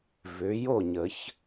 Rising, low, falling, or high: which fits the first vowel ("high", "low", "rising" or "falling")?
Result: rising